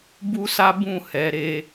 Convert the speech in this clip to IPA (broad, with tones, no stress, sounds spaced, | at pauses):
b u˦ s a˦ b ũ˦˨ h ɛ˨˦ ɾ e˧